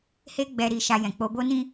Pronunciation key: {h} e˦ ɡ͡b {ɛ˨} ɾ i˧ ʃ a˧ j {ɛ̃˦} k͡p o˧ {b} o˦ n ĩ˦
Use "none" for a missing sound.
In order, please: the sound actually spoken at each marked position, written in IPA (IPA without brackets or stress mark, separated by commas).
h, ɛ˧, ɛ̃˨, b